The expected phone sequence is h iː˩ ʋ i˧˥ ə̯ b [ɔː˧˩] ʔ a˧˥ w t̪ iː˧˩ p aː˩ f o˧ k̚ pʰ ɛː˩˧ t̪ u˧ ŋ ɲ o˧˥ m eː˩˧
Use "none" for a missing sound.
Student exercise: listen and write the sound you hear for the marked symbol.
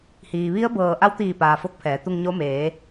ɤː˧˩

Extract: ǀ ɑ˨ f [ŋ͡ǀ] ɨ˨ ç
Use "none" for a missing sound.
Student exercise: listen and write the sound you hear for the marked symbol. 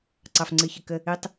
ŋ͡ǀ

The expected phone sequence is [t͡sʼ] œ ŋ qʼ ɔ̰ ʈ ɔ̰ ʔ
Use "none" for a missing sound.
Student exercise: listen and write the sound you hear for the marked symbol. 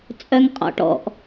t͡sʼ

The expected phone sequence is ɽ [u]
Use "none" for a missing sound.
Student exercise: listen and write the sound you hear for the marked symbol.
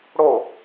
o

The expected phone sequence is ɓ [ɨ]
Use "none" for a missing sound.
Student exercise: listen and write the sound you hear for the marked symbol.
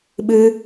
ɨ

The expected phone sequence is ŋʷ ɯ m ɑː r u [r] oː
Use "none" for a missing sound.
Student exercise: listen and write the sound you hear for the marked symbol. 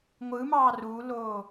l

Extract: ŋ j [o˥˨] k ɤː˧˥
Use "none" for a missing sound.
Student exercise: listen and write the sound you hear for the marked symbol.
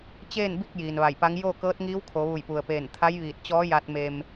o˥˨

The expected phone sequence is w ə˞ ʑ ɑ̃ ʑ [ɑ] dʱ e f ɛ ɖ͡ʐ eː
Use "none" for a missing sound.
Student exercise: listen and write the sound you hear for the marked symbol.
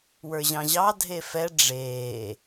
ɑ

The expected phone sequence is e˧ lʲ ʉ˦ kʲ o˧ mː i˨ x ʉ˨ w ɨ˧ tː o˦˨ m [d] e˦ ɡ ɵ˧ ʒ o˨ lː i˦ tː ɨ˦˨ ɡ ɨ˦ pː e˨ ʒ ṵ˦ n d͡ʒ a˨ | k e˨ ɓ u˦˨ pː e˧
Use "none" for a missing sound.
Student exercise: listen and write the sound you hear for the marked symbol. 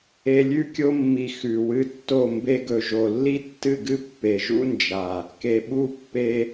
b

